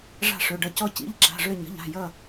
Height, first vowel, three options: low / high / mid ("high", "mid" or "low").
low